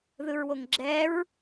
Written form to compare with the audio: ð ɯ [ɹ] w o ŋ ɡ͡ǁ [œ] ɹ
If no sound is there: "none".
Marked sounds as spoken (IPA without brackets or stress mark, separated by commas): ɹ, ɛ